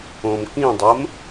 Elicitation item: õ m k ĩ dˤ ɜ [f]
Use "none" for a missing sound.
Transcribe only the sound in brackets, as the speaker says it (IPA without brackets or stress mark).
m